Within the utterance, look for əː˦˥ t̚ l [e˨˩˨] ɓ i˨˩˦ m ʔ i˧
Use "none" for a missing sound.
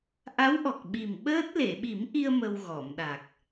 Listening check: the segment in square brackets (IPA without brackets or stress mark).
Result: e˨˩˨